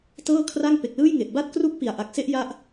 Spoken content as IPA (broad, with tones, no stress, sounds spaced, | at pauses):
t ɤː˥˩ kʰ r a˥˩ ŋ p e˨˩ k̚ l ɯː˥˩ j ŋ e˨˩ ʔ b a˥˩ t̚ k r u˥˩ k̚ p i˨˩ a̯ ʔ a˨˩ k̚ s e˥˩ ʔ j a˦˥ ʔ